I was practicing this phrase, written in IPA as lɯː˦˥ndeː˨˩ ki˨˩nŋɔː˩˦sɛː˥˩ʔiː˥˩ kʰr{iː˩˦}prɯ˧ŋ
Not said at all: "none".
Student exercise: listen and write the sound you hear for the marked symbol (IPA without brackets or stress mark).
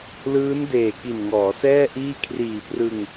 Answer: iː˨˩